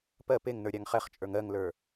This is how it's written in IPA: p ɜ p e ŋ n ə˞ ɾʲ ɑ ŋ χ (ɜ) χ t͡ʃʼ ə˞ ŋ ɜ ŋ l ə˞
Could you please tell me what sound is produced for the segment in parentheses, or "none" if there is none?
ɛ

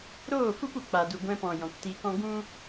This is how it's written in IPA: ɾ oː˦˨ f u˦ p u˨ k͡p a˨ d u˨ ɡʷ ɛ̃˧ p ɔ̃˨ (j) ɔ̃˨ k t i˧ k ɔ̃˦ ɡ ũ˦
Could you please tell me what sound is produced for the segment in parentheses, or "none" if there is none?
j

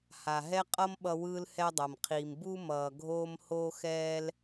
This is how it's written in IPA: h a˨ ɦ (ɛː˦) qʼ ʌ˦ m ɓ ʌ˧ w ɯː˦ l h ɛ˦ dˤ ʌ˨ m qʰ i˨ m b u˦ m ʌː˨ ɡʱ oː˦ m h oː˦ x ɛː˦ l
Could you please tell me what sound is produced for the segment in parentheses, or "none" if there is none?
ɛ˦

